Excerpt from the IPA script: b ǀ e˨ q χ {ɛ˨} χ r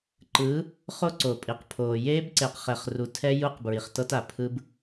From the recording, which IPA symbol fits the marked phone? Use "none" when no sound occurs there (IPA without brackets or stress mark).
ɛ˨